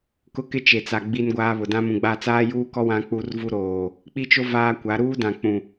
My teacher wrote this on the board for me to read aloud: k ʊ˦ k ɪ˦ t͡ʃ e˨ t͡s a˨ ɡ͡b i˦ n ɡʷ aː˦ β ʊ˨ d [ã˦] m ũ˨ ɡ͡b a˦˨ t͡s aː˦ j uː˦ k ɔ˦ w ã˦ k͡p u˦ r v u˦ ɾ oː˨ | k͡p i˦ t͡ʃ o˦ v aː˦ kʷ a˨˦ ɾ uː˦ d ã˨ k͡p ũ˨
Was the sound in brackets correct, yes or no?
yes